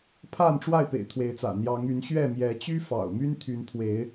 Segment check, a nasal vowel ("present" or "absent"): absent